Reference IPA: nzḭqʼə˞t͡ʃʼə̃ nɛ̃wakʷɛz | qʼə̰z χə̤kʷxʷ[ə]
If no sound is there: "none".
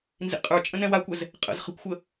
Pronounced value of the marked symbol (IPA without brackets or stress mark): ə